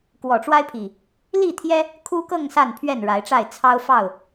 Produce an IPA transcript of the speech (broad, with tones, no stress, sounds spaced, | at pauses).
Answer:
k w ɔ˨˩ ʈ͡ʂ w a˦ ɪ̯ pʰ i˨˩ | l i˥˨ t̪ʰ j ɛ˦ | kʰ u˦ k ɤ˥˨ ŋ s a˥˨ n pʰ ɥ ɛ˥˨ n ɻ a˨˦ ɪ̯ ʈ͡ʂ a˥˨ ɪ̯ t͡sʰ ɑ˦ ʊ̯ f ɑ˥˨ ʊ̯